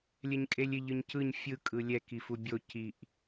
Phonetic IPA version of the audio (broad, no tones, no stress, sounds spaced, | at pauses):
lʲ ɛ ɲ kʼ e lʲ ɪ ʎ ɯ ɲ c ɯ ɲ fʲ ɯ kʼ ɯ lʲ ɛ k i f u bʲ o c i ʔ